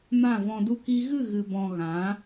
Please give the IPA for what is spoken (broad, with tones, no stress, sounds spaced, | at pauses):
m ã˦˨ v ɔ̃˧ d u˦ k i˦ ɣ ɨ˦˨ ɣ ɨ˧ b ɔ̃˧ ɣ ã˨˦